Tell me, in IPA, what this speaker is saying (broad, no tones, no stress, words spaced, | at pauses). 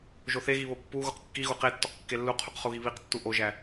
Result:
ʒoθeɣi βopːuɣuq kːiɣu qetːoq kːelːuqʰuq χuɣiβiqtːu ʔoʒæ